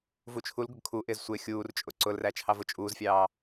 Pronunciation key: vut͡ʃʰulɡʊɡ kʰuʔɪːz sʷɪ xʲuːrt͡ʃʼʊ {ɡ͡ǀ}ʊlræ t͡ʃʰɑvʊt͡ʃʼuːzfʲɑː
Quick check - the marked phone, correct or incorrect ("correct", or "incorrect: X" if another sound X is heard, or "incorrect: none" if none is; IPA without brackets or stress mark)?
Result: incorrect: ǀ